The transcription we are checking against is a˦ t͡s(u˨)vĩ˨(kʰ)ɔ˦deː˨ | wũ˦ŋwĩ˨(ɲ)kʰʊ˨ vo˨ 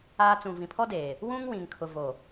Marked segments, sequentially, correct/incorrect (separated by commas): incorrect, incorrect, incorrect